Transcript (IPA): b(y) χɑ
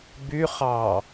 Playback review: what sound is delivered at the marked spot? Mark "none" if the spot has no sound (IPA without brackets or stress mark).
y